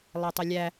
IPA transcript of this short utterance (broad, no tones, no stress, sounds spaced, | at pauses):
lˠ æ tˤ ɪ lʲ æ